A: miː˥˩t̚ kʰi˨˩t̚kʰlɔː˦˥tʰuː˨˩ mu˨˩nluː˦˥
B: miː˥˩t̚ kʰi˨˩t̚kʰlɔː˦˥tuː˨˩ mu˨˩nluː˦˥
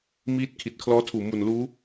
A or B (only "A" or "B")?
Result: A